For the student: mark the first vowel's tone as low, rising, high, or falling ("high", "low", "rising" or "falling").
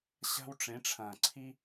high